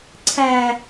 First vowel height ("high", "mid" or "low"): low